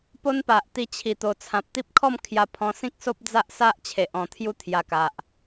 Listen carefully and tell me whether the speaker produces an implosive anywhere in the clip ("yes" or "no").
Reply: no